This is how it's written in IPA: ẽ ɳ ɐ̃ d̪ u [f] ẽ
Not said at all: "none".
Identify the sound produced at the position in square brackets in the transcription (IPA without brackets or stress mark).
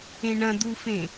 f